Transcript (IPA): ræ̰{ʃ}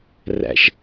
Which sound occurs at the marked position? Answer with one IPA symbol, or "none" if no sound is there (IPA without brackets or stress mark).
ʃ